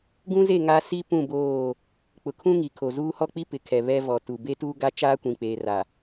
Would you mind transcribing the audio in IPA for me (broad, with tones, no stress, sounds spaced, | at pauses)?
ɡ ũ˦ z e˦˨ ŋ a˦ s i˦ p ũ˦˨ b oː˦˨ | k͡p ʊ˨ kʰ ũ˦ ŋ i˨ kʰ o˨ z uː˦ h ɔ˦ k͡p i˦ p ɪ˨ kʰ ɛ˨ β ɛ˦ v ɔ˨ t u˨ b e˦ t uː˦ ɡ a˦ t͡ʃ aː˦ kʷ ĩ˨ k͡p eː˨ r a˨